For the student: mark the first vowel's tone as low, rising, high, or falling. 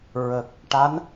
low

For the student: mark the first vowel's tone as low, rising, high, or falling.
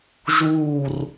falling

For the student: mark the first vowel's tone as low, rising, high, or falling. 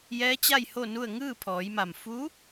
rising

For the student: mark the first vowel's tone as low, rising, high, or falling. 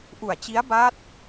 low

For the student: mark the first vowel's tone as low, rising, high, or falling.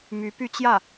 rising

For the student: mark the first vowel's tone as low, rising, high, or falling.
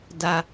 low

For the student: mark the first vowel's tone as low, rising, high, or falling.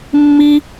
high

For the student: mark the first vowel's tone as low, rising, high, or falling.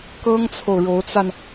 high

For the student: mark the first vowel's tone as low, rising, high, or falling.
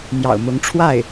low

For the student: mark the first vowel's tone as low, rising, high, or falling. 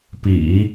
low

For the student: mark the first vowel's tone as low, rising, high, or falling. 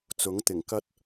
rising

